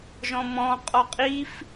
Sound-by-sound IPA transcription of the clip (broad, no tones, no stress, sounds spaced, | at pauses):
ʒ ɔ̃ m ɔ̃ qʼ ɔ qʼ i f